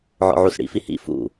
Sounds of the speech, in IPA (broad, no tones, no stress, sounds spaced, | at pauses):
ʕ ɔ̰ ʕ u s ɽ ḭ f i h ḭ f ṵ